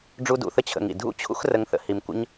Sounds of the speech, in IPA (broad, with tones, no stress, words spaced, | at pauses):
ɖ͡ʐu˧dṵ˨θə˦ t͡ɕʰə̰˧ŋḭ˨ dʱṵ˦t͡ɕʰṵ˦xrə˧ŋ θə̰˧hi˧m kʷə̰˦ɲ